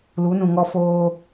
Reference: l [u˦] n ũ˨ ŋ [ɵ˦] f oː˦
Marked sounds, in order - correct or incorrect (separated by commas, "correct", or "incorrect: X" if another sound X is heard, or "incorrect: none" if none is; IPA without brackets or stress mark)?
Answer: incorrect: u˨˦, incorrect: ɔ˦